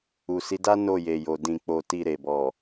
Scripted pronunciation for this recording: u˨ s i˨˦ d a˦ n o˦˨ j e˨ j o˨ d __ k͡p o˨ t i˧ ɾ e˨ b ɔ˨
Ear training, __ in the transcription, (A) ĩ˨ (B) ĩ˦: A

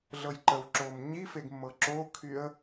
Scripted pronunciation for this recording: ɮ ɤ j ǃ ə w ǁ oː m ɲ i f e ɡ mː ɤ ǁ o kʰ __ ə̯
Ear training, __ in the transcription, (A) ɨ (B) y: B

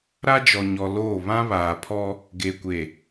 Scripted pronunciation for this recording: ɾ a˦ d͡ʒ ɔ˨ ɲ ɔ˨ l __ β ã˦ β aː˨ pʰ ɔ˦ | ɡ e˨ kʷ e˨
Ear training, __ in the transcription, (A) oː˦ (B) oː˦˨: B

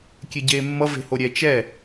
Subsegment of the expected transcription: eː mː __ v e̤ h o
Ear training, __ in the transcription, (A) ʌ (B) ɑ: A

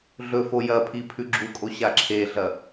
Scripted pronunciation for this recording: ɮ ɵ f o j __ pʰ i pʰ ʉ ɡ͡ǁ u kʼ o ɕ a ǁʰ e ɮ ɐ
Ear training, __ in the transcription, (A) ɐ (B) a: A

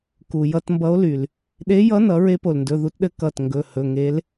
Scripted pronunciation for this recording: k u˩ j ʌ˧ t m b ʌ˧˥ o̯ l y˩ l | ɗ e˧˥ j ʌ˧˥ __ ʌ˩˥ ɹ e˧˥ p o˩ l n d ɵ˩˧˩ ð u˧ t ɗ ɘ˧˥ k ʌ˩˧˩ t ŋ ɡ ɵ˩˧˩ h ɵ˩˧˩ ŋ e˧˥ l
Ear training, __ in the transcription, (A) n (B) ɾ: A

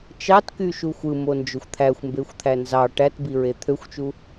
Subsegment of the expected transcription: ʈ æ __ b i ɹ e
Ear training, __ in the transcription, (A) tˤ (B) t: B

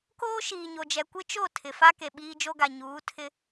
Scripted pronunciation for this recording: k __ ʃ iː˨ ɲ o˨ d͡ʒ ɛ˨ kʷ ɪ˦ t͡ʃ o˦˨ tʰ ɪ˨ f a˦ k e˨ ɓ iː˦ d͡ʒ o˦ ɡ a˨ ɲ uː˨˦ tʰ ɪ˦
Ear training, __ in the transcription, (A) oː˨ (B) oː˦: B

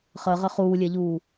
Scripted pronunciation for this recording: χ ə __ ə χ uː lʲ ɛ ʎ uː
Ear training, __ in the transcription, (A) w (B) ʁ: B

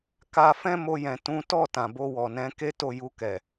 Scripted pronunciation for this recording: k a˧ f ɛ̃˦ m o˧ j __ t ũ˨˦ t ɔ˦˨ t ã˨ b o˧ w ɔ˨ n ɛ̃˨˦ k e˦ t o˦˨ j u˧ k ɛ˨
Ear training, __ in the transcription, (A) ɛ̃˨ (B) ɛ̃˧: A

